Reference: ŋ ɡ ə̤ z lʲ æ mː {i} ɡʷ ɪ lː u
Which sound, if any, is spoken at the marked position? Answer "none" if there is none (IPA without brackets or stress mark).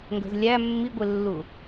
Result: i